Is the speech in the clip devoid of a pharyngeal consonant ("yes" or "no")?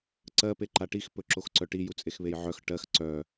no